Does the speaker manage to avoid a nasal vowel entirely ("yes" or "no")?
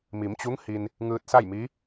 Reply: yes